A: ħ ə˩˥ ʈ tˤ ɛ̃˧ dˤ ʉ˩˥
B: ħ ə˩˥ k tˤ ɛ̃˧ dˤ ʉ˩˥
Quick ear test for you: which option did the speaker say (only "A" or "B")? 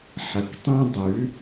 B